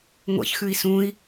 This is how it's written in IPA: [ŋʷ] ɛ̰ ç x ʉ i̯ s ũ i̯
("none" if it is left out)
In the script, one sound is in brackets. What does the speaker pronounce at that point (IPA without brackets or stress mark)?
ŋʷ